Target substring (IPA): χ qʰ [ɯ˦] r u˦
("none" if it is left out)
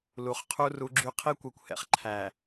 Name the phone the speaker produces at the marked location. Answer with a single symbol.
u˦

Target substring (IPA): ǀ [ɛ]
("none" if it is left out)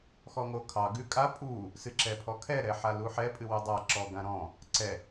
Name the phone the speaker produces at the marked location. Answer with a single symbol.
ɛ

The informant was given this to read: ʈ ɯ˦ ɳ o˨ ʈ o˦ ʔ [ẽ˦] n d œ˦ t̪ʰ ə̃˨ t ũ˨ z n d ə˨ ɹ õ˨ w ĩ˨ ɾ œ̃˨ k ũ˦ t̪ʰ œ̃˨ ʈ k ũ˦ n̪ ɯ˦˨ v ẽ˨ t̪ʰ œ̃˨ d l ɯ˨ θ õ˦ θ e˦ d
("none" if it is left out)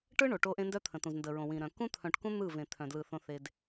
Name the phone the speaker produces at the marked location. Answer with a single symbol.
ẽ˦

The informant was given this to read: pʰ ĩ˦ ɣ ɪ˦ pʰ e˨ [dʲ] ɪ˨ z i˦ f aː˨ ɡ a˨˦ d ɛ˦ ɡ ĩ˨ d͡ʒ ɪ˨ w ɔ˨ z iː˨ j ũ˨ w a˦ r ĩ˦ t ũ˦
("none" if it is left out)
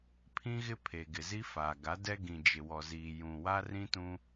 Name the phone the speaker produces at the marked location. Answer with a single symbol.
ɡ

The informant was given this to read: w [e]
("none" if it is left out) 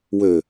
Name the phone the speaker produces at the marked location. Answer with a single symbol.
ø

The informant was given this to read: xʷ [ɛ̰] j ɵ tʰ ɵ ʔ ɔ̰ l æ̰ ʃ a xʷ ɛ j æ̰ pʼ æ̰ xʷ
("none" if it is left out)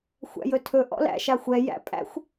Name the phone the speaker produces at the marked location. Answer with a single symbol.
æ̰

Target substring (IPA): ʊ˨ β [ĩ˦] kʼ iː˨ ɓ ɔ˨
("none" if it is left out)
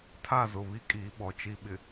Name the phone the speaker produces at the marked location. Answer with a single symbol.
i˦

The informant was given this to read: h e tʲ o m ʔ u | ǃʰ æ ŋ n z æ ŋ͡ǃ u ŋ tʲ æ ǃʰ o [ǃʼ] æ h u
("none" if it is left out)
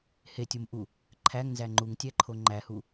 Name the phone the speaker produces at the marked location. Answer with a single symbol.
ŋ͡ǃ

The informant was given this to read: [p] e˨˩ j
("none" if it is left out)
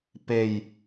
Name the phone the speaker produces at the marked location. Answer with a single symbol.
p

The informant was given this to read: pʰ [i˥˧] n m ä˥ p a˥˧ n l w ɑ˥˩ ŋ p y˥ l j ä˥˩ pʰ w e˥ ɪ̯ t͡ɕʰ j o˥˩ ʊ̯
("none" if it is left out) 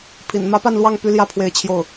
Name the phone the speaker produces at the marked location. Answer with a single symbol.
ḭ˨˩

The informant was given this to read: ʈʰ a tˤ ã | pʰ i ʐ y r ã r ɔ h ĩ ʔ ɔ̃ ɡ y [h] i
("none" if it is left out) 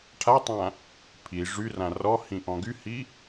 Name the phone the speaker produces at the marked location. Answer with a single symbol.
h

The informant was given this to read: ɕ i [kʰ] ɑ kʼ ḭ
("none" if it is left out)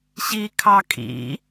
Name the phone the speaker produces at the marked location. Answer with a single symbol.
kʰ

